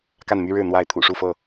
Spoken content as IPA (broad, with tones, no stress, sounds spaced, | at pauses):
k a˥˨ n m y˦ ɻ ɻ̩˥˨ n̪ w a˥˨ ɪ̯ t̪ʰ ṵ˨˩ ʂ u˥˨ f ɤ˥˨